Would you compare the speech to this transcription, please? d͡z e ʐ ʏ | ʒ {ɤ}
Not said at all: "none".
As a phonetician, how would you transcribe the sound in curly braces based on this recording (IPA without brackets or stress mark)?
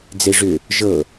ɤ